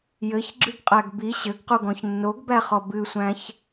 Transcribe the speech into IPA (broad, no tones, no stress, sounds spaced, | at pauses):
j ɘ ç ɡ͡ǁ ɨ ɡ qʼ æ ɡ b i ɕ ɘ ɡ q u ɡ ɔ̃ ç nː o ɡ b æ χ ɔ b ɨ sʷ æ̃ ç